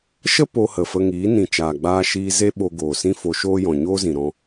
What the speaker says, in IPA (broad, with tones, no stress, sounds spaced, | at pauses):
ʃ ə˦ p o˧ h ə˨ f ə˧ ŋ iː˨˦ n ĩ˨ t͡ʃ aː˨ ɡ͡b aː˧ ʃ iː˧ z e˦ ɓ o˧ ɡ oː˨ s ĩ˦ f o˧ ʃ oː˦ j ɔ̃˨ ɲ oː˦ z ĩ˨ ɾ ɔ̃˧